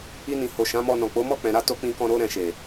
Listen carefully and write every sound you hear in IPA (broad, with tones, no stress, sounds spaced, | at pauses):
i˧ n ĩ˨ h o˨ ʃ ã˨˦ m ɔ˧ n ɔ̃˨ k͡p o˨˦ m ɔ˦˨ k͡p ɛ̃˨ ɾ a˨˦ t o˧ k͡p ĩ˧ k ɔ̃˧ ɾ o˦ ɾ ɛ̃˧ ʃ e˨